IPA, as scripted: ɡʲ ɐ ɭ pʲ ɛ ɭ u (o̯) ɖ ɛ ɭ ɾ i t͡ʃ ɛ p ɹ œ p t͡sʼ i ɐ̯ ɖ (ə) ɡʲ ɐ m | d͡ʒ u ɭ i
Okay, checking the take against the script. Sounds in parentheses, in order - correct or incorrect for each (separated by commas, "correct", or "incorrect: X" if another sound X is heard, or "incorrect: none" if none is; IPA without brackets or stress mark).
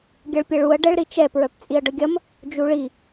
incorrect: ɐ̯, correct